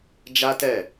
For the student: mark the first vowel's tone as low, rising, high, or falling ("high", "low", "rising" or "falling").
high